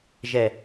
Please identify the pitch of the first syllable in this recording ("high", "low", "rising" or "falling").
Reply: low